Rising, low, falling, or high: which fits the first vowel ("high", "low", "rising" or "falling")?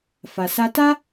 low